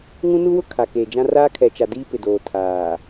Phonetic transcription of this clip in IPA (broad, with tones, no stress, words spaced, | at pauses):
ŋũ˦nu˦wʊ˦ kʰa˨keː˨d͡ʒã˦ raː˦kʰɛ˨t͡ʃa˨ diː˦pɪ˨doː˨ tʰaː˨